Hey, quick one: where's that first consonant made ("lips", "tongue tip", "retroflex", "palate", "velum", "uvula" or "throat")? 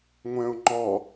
velum